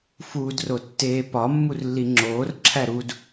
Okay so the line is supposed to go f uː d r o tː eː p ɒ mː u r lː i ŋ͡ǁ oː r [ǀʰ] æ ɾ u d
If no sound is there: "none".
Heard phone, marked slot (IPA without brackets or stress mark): ǁʰ